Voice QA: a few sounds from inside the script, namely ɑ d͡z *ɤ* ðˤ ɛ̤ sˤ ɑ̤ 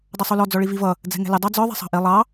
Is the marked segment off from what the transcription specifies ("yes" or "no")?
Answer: yes